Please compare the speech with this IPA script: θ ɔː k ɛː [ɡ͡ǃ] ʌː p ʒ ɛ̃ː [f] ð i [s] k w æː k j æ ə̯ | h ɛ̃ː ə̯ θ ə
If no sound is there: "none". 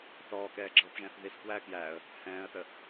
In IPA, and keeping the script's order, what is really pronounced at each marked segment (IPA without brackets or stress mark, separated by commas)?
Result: ɡ͡ǁ, θ, s